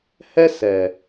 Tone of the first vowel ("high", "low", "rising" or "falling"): high